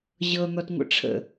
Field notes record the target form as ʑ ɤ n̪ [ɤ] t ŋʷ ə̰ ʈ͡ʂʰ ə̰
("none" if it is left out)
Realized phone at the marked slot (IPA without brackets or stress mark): ɔ